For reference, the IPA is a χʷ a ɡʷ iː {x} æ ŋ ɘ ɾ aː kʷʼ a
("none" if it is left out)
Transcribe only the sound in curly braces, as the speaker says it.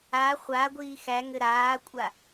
x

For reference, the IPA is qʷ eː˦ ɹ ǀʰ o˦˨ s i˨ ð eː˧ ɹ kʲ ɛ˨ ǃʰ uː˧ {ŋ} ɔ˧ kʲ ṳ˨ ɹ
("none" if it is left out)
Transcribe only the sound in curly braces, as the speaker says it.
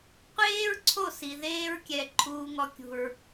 ŋ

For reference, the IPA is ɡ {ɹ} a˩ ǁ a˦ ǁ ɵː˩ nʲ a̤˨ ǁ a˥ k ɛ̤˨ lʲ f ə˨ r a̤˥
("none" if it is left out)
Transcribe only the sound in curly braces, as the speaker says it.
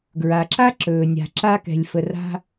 ɹ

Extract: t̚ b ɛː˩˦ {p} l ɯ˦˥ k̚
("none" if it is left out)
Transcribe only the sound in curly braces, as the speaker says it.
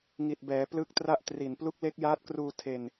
p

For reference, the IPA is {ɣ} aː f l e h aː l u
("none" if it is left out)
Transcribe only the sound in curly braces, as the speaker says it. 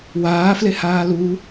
w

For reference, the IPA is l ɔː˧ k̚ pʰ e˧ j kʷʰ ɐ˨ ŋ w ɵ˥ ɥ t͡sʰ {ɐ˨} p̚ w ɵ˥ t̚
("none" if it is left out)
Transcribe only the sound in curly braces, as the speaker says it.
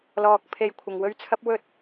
ɐ˥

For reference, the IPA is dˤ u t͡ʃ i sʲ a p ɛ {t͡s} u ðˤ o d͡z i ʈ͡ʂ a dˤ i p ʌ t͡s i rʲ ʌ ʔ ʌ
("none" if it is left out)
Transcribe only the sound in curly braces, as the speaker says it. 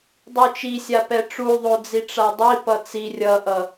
ʈ͡ʂ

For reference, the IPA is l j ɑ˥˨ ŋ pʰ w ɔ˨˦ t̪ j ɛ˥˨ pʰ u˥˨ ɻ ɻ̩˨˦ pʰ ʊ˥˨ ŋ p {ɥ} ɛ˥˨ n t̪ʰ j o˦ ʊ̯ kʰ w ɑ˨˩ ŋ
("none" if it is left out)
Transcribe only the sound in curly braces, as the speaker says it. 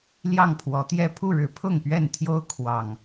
ɥ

